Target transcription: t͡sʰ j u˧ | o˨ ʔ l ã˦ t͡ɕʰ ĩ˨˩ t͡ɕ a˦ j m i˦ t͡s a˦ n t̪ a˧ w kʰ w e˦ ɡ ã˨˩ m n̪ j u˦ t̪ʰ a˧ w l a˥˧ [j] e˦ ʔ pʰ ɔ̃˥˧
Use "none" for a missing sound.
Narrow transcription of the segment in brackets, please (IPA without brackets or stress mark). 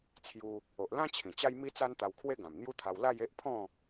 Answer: j